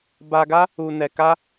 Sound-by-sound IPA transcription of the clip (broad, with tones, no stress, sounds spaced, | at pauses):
b a˧ ɡ a˦ | u˧ n ɛ˧ k a˦